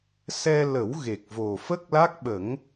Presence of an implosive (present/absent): present